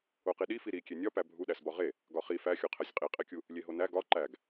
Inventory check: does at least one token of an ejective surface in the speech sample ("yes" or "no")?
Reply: yes